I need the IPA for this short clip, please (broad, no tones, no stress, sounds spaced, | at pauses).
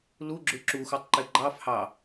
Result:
l u ɡ͡ǁ ʉ ǁ u x u tˤ ǃ e ɡ͡ǃ ɑ f h ɑ